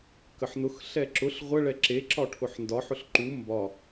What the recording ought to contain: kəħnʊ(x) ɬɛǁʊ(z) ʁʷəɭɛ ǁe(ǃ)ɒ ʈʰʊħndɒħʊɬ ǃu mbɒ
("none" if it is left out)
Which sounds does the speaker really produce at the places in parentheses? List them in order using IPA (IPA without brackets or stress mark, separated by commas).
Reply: x, ɬ, ǁ